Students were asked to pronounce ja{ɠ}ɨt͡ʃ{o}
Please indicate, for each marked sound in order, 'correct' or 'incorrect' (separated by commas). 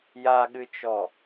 correct, incorrect